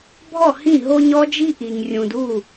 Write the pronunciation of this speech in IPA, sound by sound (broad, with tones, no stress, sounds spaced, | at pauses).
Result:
bʱ ɔ˥˩ h ĩ˥˩ ɦ o˦ ɲ ɔ˦ d͡ʒ i˦ ʔ i˨ ɲ rʲ ũ˨ d u˥˩